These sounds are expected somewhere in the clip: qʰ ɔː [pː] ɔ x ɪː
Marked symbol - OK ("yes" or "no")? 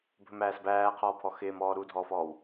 no